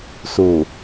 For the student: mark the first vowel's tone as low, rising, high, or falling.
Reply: low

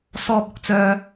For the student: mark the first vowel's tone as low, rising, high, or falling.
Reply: high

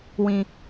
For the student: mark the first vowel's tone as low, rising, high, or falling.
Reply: low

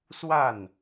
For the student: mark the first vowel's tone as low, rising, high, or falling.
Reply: falling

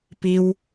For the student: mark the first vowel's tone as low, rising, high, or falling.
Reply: high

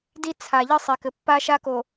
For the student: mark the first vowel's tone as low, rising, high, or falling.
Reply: high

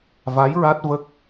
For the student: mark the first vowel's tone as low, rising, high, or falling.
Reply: rising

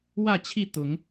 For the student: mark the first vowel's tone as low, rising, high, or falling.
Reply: falling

